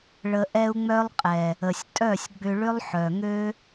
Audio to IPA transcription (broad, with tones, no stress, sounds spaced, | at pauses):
ɭ ə˧ ʔ ɛ˦ u̯ ŋ͡m œ˦ lˠ qʼ ɛ˨ | ə˨ sʲ tʼ œ˦˨ sʲ ɡ͡b ʏ˧ ɭ ʏ˦ lˠ ħ œ˨ ŋ ø˦